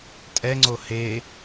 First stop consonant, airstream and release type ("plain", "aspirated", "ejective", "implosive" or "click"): ejective